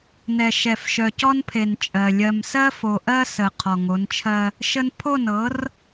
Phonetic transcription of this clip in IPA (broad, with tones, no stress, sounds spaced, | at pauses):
n ɛ˨ ʃ ɛ˨ f ʃ œ˨ c ɔ˦ n pʰ e˨ n t͡ʃʼ ɜ˨ lʲ ɜ˨ m s ɜ˦ f o˨ ʔ ɜ˦ s ə˨ qʰ ɔ˨ ŋ o˨˦ n t͡ʃʰ ɜ˦ | ʃ ə˦ n pʰ o˦˨ n ɤ˨˦ r